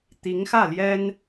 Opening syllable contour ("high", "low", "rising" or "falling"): rising